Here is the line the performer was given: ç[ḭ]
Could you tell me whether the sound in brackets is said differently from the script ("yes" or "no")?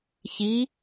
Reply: yes